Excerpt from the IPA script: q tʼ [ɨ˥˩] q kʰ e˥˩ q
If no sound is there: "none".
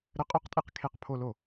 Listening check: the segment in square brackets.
e˥˩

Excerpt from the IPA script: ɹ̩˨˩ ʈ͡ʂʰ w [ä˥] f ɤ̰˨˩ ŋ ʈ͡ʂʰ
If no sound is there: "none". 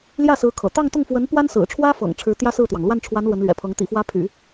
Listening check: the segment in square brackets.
ä˥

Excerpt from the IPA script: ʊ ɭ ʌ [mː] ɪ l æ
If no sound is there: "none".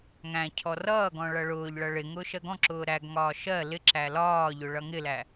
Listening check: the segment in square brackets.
ŋ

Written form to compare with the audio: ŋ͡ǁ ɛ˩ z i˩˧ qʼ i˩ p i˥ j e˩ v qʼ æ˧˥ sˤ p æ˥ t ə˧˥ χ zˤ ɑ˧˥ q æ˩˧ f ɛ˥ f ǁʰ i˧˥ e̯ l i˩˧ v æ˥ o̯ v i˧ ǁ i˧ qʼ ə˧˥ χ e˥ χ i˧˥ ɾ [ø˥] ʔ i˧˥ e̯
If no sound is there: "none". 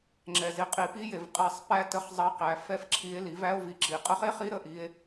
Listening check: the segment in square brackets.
ə˥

